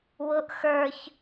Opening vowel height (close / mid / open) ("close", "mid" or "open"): close